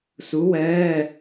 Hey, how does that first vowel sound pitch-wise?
rising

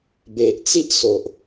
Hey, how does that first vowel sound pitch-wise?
low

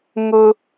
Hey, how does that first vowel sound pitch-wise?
high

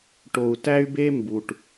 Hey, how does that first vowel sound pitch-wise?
low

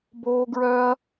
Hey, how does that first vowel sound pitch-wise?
high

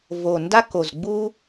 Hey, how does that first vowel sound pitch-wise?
low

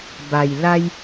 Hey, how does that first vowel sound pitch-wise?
low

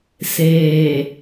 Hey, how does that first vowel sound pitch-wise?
low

